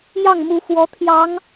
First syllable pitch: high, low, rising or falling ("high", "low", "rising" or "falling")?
falling